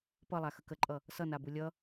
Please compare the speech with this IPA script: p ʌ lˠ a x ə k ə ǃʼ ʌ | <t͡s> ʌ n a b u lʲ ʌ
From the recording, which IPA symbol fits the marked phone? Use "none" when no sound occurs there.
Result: s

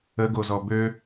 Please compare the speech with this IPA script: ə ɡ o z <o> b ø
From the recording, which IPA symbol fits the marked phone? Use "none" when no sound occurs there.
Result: ɔ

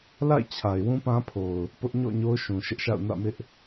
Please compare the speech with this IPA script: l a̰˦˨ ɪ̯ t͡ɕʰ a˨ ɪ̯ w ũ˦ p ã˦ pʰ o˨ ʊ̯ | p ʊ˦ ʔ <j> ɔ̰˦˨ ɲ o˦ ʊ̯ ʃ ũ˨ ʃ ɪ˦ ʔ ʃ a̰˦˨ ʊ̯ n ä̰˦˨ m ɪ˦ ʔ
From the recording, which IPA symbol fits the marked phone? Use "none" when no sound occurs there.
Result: ɲ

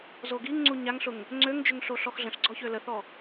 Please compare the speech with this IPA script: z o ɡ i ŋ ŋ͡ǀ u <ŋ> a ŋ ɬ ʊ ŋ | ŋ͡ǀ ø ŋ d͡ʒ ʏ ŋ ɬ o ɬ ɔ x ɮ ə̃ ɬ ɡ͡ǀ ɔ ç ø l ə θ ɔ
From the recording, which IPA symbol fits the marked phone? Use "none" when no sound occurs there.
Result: ɲ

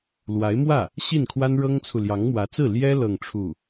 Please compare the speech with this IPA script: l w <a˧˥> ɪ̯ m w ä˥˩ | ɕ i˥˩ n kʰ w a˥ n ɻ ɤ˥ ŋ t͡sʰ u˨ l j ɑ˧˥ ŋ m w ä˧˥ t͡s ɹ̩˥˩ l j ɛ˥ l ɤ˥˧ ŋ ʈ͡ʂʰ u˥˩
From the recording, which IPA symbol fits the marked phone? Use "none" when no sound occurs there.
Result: a˧˥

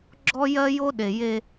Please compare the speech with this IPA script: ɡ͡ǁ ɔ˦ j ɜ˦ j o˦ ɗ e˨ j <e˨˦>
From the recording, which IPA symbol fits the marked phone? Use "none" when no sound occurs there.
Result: e˦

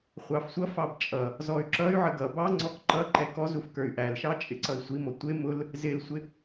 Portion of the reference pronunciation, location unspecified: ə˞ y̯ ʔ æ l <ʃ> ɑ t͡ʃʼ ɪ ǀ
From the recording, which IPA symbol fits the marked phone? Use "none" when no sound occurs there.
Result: ʃ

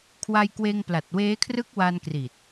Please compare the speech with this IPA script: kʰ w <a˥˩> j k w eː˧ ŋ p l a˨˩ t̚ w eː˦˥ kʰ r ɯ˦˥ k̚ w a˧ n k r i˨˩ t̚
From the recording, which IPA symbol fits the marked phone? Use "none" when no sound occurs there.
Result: a˧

